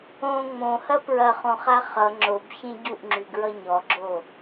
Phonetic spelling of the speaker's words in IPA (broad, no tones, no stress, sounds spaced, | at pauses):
õ ŋ͡m õ h ɐ p ɹ ɐ χ õ χ a χ ʌ ŋ͡ǁ o b ç ẽ ɟ u ʔ ŋ͡ǁ y ɡ ɹ ʌ ɲ ɔ ɡ͡ǁ o